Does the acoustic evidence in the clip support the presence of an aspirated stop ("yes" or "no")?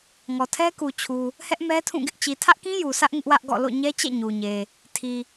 yes